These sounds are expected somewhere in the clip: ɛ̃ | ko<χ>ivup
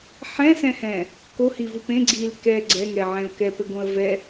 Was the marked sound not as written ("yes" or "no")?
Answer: yes